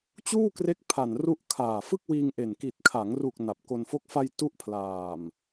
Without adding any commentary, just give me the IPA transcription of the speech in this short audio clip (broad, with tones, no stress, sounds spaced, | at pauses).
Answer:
t͡ɕ uː˥˩ k r e˦˥ k̚ pʰ a˨˩ n r u˦˥ ʔ kʰ aː˨˩ f ɯ˥˩ k̚ w iː˧ ŋ ʔ e˨˩ n k i˨˩ t̚ kʰ a˩˦ ŋ r u˨˩ k̚ n a˨˩ p̚ k o˧ n f o˦˥ k̚ f a˧ j t u˦˥ ʔ pʰ l aː˨˩ m